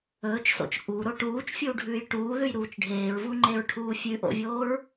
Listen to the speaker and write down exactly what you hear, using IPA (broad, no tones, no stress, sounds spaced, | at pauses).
ɵː t͡ʃ s o̰ t͡ʃ ʔ u ɾ o ʈ uː t͡ʃ fʲ uː ɖʱ ʉː j ʈ uː ð ʉ j ɾ uː t͡ʃ ɖʱ eː ɹ v u ŋ͡ǃ e ɹ ʈʰ uː fʲ ʉ ʔ o̰ vʲ oː ɹ